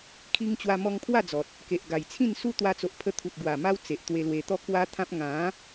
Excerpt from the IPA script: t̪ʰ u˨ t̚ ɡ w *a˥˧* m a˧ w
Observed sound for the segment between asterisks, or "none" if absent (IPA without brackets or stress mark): a˨˩